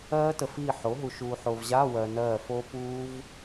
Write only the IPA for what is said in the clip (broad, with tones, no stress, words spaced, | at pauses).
ɜː˦˥tə˨fiː˦˨ ħo˩˥ɦu˨ʃuː˨ħo˨v ʑa˧˥˧ wɜ˨ nɜː˦˨ fo˦˥puː˦˥v